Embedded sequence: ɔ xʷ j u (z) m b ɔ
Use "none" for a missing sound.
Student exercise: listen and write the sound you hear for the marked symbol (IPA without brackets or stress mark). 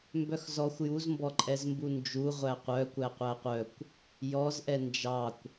z